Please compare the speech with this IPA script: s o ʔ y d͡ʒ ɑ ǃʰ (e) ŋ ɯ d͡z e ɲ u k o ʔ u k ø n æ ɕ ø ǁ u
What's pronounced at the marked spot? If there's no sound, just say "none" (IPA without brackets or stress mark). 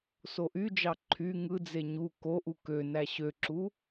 y